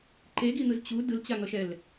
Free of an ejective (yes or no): yes